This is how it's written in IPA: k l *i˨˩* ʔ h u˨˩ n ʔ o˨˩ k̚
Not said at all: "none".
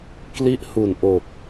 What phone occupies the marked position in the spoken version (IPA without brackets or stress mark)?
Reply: i˥˩